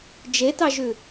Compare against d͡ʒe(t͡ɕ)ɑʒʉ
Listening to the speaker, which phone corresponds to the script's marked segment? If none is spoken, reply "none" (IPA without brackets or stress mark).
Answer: t